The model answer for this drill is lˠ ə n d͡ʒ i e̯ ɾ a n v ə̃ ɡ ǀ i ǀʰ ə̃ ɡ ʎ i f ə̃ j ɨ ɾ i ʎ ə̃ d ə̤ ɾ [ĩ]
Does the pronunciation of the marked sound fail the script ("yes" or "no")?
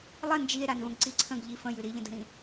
no